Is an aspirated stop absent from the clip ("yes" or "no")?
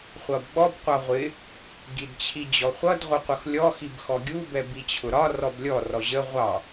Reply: no